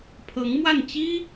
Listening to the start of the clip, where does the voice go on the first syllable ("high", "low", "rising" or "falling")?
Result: rising